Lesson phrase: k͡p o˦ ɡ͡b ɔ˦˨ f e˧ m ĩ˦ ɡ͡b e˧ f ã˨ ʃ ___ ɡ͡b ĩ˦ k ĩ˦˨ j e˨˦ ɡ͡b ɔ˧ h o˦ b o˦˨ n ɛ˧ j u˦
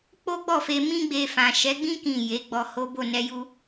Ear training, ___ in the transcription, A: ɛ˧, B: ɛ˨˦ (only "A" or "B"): B